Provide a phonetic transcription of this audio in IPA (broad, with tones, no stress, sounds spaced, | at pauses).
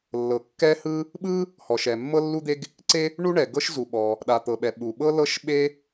lː ɤ˩ kː ɛ˥ h ɯ˥ | ɓ ɯ˥ | h ɔ˩ ʃ ɛ˩ mː ɤ˥ lː u˥ d̪ e˥ ɡ | ǀ e˥ | ɳ u˥ ɳ ɛ˩ ɡ ɤ˥ ʃ z u˩ ɓ ɔ˩ | ɗ a˩ t̪ ɤ˩ ɓ ɛ˩ ɓ u˩ ɓ ɤ˥ l ɤ˥ ʃ ɓ e˥